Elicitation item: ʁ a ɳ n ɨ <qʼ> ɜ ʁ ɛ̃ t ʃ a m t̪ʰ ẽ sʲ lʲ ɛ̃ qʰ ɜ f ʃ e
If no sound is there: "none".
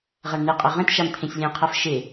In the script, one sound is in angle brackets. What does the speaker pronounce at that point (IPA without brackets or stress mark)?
qʼ